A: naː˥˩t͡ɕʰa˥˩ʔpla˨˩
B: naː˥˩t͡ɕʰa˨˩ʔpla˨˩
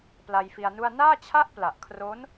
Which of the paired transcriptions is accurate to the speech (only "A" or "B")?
A